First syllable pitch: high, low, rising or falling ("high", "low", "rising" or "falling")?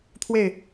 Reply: falling